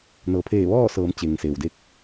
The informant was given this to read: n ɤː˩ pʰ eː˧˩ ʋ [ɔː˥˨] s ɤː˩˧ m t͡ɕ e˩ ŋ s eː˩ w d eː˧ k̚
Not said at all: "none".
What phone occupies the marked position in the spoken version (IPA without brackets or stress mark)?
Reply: ɔː˥˨